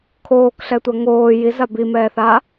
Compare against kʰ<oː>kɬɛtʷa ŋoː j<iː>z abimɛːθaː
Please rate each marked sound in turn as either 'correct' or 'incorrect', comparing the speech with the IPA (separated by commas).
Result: correct, incorrect